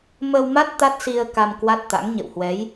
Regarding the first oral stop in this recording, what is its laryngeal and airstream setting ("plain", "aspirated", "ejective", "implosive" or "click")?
plain